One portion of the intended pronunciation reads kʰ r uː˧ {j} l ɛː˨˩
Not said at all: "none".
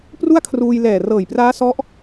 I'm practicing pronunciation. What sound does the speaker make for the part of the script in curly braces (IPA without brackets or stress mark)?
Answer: j